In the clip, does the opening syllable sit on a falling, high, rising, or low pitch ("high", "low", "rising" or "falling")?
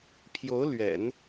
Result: rising